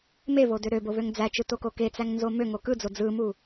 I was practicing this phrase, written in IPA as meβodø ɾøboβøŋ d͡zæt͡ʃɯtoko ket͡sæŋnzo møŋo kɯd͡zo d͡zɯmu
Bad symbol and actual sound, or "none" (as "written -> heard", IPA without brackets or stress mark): none